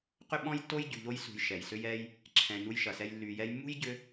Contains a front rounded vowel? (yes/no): yes